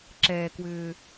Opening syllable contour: low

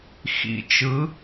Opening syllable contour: low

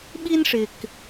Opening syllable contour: high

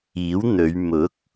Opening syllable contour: rising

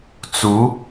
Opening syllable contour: rising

